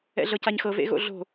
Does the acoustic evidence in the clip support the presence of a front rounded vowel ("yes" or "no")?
no